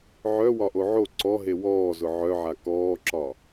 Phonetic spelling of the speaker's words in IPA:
ʕœ wɒʔoʕo ǀɔɦe wɔːzʊ ʕœʕa kɔːǁɒ

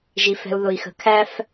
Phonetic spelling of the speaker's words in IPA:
ʒi˨fɛ̤˨u̯ðʊ˨i̯xə̤˨ kʰæ˦f

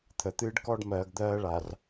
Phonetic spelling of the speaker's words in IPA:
t̪ʰə˨t̪ɨː˦ɖkɔ˦ɖmɜː˨ɡ d̪ɜː˦ɭa˨r

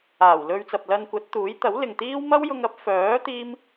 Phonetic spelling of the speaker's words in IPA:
aː˨˩wlɵ˧ɥ t͡sɐ˨p̚lɐ˧nkʷɐ˨˥t̚t̪uː˨˥j t̪ɐ˨˥wlɪ˨ŋt̪iː˥w mɐ˥wjʊ˧ŋ ɐ˨˥p̚fœː˨˥ t̪iː˥m

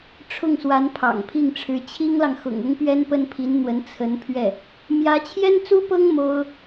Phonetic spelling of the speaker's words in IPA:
ʈ͡ʂʰʊ˥˩ŋswa˧˥n pʰɑ̰˨˩ŋpʰi˥˩ŋʈ͡ʂʰɻ̩˧˥ t͡ɕʰi˥ŋlɑ˨ŋ xʊ̰˨˩ŋʊ˥ŋpɥɛ˥n pə˥npʰi˧˥nn̪wə˧˥n t͡sʰə˧˥n pʰɥɛ˥˩ | mjä˧˥t͡ɕʰjɛ˥nt͡su˥pɤ˥ŋ mo˥ʊ̯

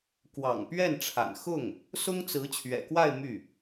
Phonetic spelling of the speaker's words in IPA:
kwɑ̰˨˩ŋpɥɛ˥˩nʈ͡ʂʰa̰˨˩nxʊ˥˩ŋ | sʊ˥ŋt͡sɹ̩˧˥ t͡ɕʰɥɛ̰˨˩kwa˥˧ɪ̯ my˥˩

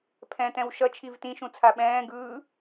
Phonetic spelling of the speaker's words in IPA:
pʰɛ̃tɛ̃w ʃʌ t͡ʃʰivtĩʃũ t͡sʰaɓɛ̃ːɡɯː

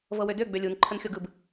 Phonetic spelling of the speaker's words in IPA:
vɤwødø ɡ͡bølʲun ǃʰənxʲoɡɯb

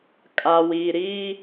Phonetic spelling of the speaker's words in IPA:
kʼa˨wiː˨ ɾi˦

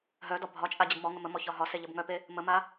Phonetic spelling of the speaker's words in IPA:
ɦœdɒ bʱɒt͡ʃʼa d͡ʑəbmɔŋə məmɔ çɒɦɒse ʎəbŋœpe | məma

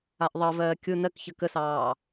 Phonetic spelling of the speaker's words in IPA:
aʔðˤɜvɜː kʲʊ nɜkçə kəsɑː

